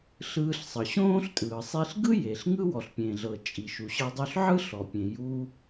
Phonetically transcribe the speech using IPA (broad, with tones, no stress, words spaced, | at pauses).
ɬɯː˧ɬsˤɤ˩ ɕõː˥ɬtʼɯː˩ sˤi˧ɬ ɡɯ˥ je˩ɬ ŋɯ˥ wɔ˩ɬpʲẽː˩ɮɤ˩ t͡ʃʼi˩ʃu˩ɕɤ˧ dˤo˧ɬʕɯ˥ɬɔ˩pʲẽ˩ ju˧